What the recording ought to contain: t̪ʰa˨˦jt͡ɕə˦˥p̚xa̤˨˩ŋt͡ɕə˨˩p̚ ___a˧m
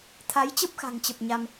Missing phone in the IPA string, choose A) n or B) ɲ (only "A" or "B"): B